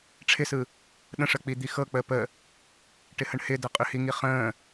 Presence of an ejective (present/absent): present